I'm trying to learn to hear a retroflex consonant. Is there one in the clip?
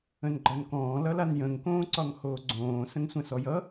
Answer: no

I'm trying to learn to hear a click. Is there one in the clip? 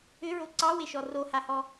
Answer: yes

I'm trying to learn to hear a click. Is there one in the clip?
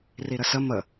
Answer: no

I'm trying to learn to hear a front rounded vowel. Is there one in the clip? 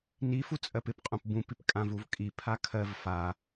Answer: no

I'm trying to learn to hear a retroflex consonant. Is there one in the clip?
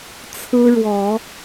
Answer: yes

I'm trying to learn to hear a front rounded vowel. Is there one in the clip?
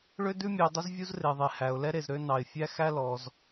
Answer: yes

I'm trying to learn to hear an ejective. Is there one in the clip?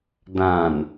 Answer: no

